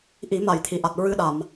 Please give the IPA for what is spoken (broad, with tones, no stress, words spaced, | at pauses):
ʔi˨˩˦ma˨˩˨jt̪ʰi˨˩˨ʔa˨˩t̚ ɹɨ˧ɗa˨˩˨m